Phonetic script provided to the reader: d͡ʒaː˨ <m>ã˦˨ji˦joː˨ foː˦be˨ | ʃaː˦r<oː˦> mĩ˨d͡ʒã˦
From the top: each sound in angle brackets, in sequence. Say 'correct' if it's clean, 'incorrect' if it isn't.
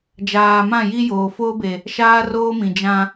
correct, correct

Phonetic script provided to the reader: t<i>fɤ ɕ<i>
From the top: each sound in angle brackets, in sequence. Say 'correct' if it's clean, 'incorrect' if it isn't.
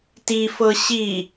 correct, correct

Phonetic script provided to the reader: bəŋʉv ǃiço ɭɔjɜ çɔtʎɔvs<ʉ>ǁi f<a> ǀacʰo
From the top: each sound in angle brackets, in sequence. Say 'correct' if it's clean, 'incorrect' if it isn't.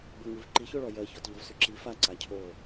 correct, correct

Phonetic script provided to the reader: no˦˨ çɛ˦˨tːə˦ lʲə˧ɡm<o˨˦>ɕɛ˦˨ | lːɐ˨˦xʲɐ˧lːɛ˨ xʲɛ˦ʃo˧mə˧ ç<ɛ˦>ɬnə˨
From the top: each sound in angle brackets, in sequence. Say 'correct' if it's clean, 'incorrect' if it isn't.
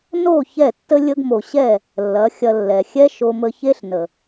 incorrect: o˨, incorrect: e˦

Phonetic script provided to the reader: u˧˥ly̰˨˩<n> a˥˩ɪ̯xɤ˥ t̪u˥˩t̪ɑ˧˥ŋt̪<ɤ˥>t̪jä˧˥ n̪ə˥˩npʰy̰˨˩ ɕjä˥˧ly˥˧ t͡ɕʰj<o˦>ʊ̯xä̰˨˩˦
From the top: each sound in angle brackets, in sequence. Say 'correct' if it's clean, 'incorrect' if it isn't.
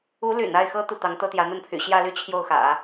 correct, correct, incorrect: o˥˩

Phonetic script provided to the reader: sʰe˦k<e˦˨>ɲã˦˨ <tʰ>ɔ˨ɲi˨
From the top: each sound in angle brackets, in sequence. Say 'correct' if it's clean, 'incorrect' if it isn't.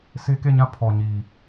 correct, incorrect: pʰ

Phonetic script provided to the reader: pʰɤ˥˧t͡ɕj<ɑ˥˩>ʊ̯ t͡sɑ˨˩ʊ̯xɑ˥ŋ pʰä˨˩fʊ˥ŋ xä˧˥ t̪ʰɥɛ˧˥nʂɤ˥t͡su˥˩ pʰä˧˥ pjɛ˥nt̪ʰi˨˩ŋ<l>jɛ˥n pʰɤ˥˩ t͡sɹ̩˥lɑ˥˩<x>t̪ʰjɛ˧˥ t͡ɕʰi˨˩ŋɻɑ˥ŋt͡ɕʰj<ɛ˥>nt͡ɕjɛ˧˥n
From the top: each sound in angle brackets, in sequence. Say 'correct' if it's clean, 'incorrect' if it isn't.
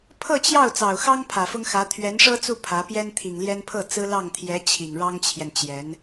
correct, correct, incorrect: ŋ, incorrect: ɛ˨

